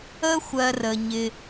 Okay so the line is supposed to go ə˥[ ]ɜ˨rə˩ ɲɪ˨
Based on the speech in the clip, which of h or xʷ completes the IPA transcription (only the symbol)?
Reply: xʷ